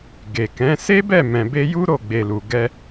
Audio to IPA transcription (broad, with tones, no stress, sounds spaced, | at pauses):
ɡ e˨ k ɛ̃˨˦ s e˦ b ɛ˦˨ m ɛ̃˨ b e˧ j u˦ ɾ o˦˨ ɡ͡b e˨ l u˨ ɡ ɛ˧